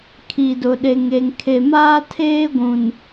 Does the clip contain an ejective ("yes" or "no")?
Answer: no